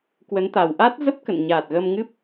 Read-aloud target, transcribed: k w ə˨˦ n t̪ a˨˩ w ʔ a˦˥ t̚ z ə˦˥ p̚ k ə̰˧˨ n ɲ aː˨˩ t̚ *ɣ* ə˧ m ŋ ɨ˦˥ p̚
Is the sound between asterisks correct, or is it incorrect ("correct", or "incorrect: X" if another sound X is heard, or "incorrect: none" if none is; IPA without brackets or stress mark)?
correct